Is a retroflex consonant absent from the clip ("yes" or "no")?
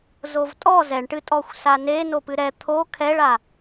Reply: no